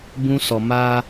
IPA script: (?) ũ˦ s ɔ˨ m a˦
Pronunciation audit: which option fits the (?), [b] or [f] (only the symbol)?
b